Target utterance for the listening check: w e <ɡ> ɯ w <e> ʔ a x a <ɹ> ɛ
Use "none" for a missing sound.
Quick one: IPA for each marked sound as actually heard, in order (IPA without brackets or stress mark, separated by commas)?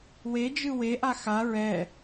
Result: d͡ʒ, e, ɹ